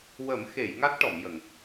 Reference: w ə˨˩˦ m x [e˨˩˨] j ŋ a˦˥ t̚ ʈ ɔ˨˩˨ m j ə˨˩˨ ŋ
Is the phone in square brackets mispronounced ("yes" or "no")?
no